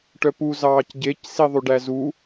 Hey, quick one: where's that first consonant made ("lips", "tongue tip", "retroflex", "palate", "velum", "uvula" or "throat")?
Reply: retroflex